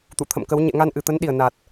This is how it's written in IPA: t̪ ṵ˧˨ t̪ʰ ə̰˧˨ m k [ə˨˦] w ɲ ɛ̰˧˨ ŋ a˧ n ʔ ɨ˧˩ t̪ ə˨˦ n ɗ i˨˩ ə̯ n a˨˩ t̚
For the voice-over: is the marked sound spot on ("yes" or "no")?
yes